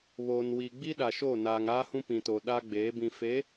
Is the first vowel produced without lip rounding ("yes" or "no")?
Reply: no